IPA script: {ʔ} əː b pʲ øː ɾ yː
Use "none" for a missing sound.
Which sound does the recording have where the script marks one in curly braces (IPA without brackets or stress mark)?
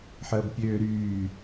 ħ